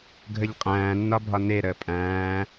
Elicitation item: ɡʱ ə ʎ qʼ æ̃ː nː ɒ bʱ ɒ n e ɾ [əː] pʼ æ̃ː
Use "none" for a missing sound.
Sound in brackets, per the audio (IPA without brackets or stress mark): əː